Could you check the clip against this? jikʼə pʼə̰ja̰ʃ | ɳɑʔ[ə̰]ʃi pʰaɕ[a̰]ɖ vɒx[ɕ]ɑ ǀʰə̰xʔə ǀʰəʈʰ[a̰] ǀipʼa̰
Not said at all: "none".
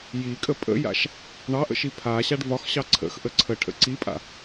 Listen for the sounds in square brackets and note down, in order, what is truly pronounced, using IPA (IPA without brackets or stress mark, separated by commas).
ə̰, a, ɕ, ə̰